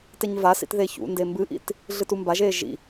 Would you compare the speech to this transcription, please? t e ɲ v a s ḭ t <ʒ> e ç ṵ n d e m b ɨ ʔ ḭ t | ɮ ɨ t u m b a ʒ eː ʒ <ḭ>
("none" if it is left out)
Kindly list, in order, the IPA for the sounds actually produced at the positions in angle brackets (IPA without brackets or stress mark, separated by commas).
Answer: ð, ḭ